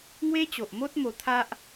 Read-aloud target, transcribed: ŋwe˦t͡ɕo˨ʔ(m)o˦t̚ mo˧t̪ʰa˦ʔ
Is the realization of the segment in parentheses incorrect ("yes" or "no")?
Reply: no